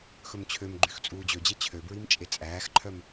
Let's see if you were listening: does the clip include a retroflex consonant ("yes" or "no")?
no